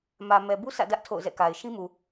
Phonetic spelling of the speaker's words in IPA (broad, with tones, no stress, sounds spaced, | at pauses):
m ä˨ m ɛ˨ b u˦ sʰ ä̰˦˨ d ä˦ ʔ tʰ o̰˦˨ ʊ̯ z ɛ̰˦˨ k a˨ ɪ̯ ʃ ĩ˦ m u˨